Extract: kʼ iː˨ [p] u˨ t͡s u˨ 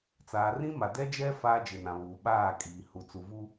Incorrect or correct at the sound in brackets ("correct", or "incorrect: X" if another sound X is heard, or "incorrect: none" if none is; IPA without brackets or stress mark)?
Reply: incorrect: h